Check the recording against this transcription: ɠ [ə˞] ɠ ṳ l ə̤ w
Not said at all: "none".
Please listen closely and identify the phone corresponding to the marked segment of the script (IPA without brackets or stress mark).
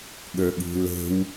ə˞